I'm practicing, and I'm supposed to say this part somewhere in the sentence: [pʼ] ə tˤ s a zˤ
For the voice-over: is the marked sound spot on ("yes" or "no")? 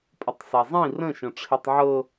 yes